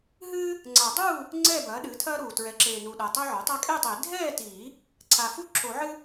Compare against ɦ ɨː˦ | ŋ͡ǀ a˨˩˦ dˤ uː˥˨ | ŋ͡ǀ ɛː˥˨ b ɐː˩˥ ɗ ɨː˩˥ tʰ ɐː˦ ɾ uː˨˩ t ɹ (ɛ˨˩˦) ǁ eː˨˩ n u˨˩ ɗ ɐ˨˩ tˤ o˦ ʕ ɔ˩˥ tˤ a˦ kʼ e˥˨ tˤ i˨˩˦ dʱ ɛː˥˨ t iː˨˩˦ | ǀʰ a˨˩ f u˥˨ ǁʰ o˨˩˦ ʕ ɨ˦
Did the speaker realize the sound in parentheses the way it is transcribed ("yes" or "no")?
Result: no